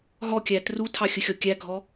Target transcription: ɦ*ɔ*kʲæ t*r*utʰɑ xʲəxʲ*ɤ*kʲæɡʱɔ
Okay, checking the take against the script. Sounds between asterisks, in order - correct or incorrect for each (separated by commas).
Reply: correct, correct, incorrect